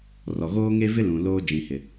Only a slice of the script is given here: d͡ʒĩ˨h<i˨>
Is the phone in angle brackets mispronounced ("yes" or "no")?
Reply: yes